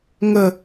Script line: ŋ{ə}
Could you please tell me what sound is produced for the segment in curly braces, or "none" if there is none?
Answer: ə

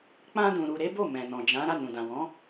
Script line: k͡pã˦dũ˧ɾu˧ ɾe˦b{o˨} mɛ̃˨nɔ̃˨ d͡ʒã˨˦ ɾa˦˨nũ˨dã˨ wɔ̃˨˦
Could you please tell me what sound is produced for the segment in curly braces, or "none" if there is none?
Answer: o˦˨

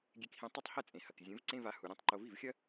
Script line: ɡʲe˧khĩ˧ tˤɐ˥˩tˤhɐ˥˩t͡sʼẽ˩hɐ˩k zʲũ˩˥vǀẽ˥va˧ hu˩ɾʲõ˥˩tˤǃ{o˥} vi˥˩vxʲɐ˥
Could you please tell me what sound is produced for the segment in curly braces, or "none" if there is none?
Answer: o˧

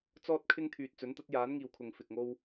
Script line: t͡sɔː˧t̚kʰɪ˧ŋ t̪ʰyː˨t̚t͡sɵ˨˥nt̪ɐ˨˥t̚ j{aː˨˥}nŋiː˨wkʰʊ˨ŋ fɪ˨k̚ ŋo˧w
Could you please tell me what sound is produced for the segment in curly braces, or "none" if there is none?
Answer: aː˨˥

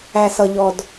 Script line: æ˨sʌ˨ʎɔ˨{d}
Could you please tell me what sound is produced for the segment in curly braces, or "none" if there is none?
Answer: d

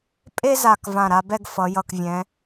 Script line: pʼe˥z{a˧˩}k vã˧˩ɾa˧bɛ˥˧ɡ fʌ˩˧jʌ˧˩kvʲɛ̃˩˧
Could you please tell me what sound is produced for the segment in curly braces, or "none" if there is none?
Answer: a˧˩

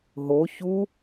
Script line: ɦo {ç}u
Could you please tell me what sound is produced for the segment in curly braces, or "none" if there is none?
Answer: ç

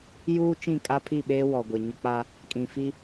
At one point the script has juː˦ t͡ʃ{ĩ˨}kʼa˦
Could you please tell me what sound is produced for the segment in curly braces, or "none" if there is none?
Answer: ĩ˦˨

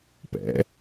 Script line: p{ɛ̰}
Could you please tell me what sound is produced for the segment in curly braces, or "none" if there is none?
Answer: ɛ̰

